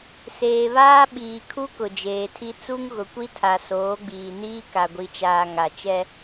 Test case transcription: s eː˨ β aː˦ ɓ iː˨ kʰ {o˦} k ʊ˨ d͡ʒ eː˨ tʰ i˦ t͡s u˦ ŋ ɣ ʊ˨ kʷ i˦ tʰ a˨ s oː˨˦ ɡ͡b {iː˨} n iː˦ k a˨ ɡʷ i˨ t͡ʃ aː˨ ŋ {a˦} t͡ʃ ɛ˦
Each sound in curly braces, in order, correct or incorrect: incorrect, correct, incorrect

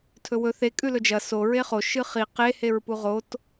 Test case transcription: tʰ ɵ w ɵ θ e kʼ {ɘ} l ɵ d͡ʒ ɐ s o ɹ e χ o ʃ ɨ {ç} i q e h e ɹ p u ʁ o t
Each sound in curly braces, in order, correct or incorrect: incorrect, incorrect

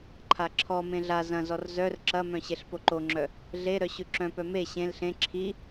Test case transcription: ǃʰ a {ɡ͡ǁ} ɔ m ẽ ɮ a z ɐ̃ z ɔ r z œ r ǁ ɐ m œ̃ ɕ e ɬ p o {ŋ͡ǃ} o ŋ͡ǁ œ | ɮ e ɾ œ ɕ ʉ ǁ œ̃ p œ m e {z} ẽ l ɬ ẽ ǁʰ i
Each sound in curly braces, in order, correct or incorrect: incorrect, incorrect, incorrect

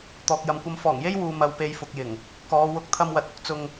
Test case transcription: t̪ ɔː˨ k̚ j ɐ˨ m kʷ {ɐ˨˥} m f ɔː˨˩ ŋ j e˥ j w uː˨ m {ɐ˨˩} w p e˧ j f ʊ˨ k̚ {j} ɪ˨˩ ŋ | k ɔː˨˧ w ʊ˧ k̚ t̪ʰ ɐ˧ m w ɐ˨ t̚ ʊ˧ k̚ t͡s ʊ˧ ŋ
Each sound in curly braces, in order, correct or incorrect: incorrect, incorrect, correct

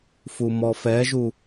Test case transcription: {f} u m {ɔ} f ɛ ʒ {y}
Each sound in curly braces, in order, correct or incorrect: correct, correct, incorrect

